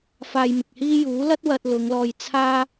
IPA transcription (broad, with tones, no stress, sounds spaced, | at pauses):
f aː˧ j m ɪ˨ k̚ h iː˥ j uː˨˥ l ɐ˥ t̚ w ɐ˧ t̚ l ʊ˨˧ ŋ l ɔː˧ j t͡sʰ aː˥